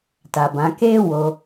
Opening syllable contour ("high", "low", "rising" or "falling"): low